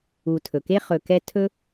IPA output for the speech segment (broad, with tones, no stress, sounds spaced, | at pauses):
u˨ tʰ ɵ˩ k e˥ χ ɵ˨ k ɛ˦ tʰ ɵ˥